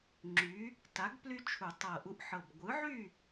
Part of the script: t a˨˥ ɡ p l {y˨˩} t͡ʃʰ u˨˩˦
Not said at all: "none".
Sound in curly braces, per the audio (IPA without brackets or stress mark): y˦